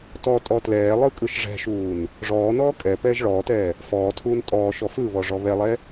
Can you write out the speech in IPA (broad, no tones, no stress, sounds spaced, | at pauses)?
t ɔ tʼ ɔ t l ɛː lˠ ɯ kʼ ɯ ʃ ʐ ɛ̤ ʃ uː n | ʐ ɔː n ɔː kʼ ɛ p ɛː ʒ ɭ ɔː t ɛː | f ɔː tʰ uː n tʼ ɔː ʃ ɔ f ɯ β ɔ ʐ ɔ β ɛ lˠ ɛ